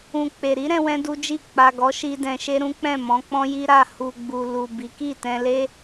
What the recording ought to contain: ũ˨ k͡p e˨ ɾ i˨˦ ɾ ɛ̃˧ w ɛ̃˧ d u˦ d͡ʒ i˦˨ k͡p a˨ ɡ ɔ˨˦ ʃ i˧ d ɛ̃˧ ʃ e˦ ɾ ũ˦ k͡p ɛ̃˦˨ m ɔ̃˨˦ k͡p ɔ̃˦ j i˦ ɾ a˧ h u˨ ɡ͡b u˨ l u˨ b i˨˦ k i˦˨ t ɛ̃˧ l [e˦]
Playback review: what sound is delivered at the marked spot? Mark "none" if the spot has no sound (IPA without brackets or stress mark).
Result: e˦